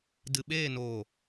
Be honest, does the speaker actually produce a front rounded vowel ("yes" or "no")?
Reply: no